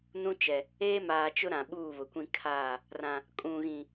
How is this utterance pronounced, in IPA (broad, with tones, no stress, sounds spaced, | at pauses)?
n ũ˦ t͡ʃ ɛ˨ | eː˦ m aː˨ t͡ʃ ʊ˦ ɾ ã˨ ɓ uː˦˨ β ʊ˨ kʷ ĩ˦ kʰ aː˦˨ | r ã˨ | kʼ ũ˨ ɣ ĩ˨